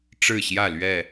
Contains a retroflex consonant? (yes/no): yes